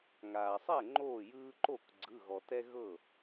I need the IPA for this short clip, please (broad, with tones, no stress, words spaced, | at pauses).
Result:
ŋaː˩sˤɛ˥˩ ŋ͡ǃoː˥˩jɯː˦ ǃo˥˩k ɡ͡ǀɯ˩˧˩ɣɔ˩tɛ˦ ɣɤ˥˩